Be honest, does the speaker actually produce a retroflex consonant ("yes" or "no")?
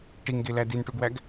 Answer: yes